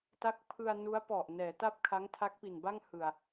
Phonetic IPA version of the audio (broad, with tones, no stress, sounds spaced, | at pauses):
t a˦˥ k̚ pʰ ɯ˧ a̯ n u˦˥ a̯ p ɔ˨˩ ʔ n ɛː˩˦ t a˥˩ p̚ kʰ a˦˥ ŋ tʰ a˦˥ k̚ p i˨˩ n b a˥˩ ŋ h ɯ˨˩ a̯